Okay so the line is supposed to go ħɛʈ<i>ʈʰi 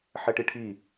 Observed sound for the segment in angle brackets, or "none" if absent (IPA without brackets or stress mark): i